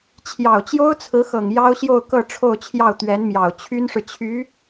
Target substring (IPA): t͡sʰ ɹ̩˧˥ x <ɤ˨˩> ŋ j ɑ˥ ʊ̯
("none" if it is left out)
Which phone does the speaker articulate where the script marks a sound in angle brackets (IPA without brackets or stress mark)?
ɤ˨˩